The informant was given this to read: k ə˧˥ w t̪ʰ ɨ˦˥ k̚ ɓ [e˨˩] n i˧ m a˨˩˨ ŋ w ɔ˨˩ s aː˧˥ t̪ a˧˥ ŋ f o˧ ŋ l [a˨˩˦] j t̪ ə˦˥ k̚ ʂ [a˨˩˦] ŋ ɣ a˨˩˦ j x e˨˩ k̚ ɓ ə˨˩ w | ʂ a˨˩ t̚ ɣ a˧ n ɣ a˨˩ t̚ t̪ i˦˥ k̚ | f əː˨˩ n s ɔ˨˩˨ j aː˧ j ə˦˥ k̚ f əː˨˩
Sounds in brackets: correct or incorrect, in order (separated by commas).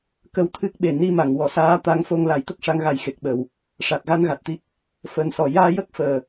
correct, correct, incorrect